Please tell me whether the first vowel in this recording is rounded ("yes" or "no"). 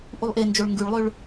yes